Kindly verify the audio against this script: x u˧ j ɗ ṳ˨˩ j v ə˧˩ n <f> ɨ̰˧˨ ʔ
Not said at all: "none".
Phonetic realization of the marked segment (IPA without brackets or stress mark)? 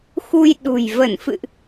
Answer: f